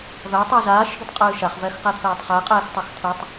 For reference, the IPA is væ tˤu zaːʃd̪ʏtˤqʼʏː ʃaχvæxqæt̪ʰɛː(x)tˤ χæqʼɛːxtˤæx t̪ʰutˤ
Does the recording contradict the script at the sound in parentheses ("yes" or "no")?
yes